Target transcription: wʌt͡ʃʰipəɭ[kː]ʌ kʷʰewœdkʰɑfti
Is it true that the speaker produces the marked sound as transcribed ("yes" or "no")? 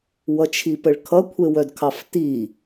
no